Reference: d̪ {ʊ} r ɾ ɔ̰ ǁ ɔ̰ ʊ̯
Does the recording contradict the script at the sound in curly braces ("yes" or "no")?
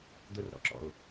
no